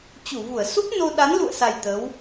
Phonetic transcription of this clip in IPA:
t͡ɕ u˧˩ v u˧˩ ə̯ s u˦˥ p̚ n o˧ ɗ a˨˦ n l ṵ˧˨ ə̯ s a˨˩ j t̪ ə˨˦ w

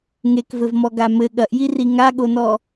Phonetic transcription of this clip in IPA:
ŋ e k v ɘ v m ɔ ɡ a m ɘ ɠ ɐ ʔ j i r i ŋ a ɠ o n ɔ

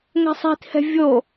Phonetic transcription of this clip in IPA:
ŋ ɛ̤ sˤ i̤ t h ɛ̤ vʲ o

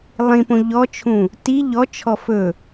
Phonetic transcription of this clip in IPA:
lˠ ĩ p õ ʎ ɔ t͡ʃʰ ũ | t i ʎ ɔ t͡ʃʰ ɔ f ɵ

